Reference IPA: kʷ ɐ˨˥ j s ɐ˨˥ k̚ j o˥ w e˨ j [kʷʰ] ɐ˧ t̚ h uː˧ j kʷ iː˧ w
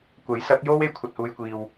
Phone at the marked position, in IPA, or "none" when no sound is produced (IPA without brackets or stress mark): kʷʰ